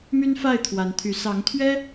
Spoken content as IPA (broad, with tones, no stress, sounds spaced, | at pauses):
m y˦ n f a˥˨ ɪ̯ t̪ʰ w a˨˦ n t̪ʰ y˨˦ s ɑ˨˦ ŋ t̪ʰ ɥ ɛ˦